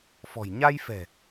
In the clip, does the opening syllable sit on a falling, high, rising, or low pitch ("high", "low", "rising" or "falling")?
low